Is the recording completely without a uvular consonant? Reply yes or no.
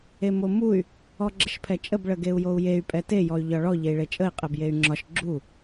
no